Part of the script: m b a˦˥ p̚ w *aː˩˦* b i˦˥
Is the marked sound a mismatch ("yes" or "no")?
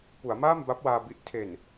yes